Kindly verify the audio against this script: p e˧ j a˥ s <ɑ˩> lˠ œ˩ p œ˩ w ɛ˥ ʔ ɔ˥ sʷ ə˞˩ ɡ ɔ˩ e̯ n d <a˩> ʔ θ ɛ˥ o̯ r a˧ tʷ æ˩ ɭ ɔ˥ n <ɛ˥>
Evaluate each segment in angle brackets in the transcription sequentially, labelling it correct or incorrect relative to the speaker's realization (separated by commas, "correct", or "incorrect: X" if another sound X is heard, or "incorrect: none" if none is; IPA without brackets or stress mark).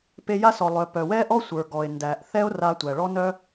incorrect: ɔ˩, incorrect: æ˩, incorrect: œ˥